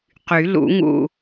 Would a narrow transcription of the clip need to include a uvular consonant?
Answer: yes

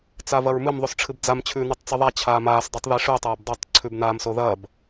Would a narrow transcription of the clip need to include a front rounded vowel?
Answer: no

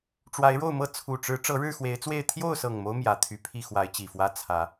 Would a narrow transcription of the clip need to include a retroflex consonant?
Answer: yes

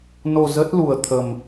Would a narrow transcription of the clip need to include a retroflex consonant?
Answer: no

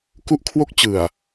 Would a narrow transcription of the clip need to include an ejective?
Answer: no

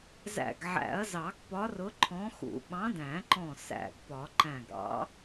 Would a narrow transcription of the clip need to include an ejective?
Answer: no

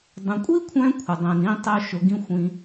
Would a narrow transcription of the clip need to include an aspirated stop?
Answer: yes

